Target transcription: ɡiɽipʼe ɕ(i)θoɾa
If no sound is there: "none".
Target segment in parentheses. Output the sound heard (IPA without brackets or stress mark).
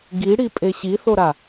i